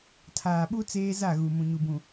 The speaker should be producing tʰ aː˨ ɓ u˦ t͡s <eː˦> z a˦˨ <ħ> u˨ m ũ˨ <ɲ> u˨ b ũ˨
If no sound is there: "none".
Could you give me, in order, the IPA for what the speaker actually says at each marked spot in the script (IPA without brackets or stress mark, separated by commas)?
eː˦, ɣ, ɲ